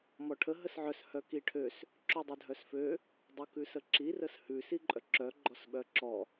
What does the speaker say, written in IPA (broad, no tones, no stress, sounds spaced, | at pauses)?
m ɔ ʈʰ ə ɦ ə s ʕ œ s h œ k i ʈʰ ø s | ǁ ʉ dˤ ʉ dʱ œ s f ø | dˤ u k ʉ s ə ǁ i r ə s h ʉ s i ǃʼ œ ǁ œ ɡ͡ǃ ɔ s ɓ œ ǁ ɔ